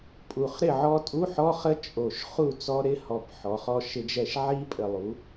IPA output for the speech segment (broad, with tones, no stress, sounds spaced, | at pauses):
pʼ u˨˩ χ ɾ ɪ˥˨ ʕ ɔ˦˥ tʼ u˧˥˧ ħ ɔ˧˥˧ χ ə˦˥ t͡ʃʼ o˨˩ ʃ χ u˥˨ t͡s ɔ˦˥ ɾ ɪ˦˥ h ɔ˨˩ b ħ ɔ˩˧ χ ɔ˦˥ ʃ ɪ˦˥ d͡ʒ ɛ˥˨ ʃ ʕ i˦˥ pʼ ə˨˩ lˠ u˩˧